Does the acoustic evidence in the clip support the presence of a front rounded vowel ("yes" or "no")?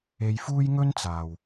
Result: no